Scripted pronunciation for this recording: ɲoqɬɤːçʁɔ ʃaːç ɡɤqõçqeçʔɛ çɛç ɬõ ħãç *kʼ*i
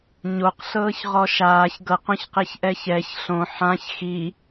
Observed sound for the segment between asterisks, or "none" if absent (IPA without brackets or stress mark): x